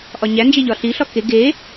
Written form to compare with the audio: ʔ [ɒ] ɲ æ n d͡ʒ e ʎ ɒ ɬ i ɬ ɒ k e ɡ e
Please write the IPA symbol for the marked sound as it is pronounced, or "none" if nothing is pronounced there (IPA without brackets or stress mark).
ɒ